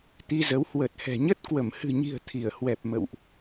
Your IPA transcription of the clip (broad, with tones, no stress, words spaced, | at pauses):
t̪i˧zə˨˦w hwə˨˩t̚hɛ̤˨˩ɲə˦˥t̚ kwə˧˩mhɨ̤˨˩ɲi̤˨˩ə̯ t̪ʰi˧˩ə̯hwɛ˨˩p̚ mə̰˧˨wʔ